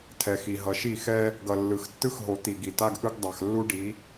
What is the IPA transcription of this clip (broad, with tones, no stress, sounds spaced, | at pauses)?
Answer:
tʰ ɛ˨ x i˨ ɦ ʌ˨ ʃ i˦˨ x ɛ˦ | ɡ ʌ˨ lː ɯ˨ x tː ɯ˦ x ɦ o˨ t̪ i˨ ɡ i˨ t a˦ ɡ ʔ ɯ˦ ɡ dˤ a˨ x lː u˦ ɖ i˨˦